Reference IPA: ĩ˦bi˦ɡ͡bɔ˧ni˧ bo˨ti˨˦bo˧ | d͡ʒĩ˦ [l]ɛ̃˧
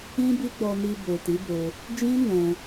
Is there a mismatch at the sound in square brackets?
yes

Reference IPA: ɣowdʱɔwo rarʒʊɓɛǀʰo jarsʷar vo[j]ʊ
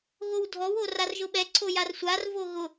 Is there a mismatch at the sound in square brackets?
yes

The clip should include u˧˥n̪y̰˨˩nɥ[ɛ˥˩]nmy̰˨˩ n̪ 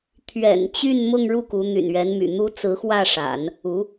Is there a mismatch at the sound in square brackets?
yes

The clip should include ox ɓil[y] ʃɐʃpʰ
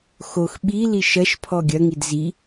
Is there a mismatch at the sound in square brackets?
yes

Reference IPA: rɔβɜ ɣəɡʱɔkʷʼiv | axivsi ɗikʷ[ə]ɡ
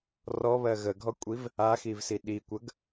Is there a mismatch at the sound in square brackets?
no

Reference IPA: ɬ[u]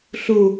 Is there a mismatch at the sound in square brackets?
no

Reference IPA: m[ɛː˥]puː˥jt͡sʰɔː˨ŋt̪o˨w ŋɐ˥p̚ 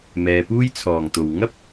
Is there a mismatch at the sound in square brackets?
yes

